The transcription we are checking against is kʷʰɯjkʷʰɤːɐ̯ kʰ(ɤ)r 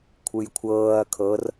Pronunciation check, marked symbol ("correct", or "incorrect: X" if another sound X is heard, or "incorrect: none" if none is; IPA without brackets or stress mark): correct